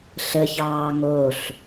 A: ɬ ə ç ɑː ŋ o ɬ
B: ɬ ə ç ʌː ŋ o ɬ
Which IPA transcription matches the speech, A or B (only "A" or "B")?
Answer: A